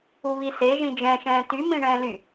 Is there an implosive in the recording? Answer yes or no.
no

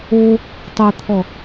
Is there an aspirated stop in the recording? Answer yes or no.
yes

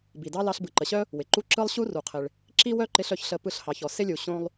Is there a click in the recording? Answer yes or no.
yes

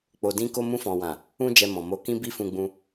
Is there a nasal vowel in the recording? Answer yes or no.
yes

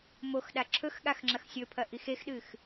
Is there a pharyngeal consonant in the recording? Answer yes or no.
no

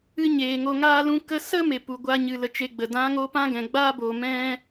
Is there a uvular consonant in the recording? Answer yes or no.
no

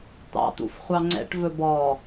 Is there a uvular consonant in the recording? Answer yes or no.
yes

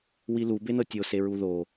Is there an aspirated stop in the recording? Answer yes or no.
no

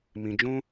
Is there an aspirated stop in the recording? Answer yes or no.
no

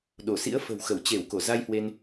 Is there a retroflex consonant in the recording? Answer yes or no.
no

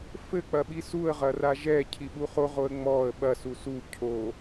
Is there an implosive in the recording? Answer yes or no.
yes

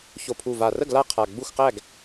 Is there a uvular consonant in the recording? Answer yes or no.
yes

